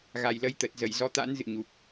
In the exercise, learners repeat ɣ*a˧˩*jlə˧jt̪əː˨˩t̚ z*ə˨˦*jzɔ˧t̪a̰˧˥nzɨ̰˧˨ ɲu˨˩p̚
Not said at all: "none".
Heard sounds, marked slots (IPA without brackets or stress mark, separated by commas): a˨˩, ə˧˩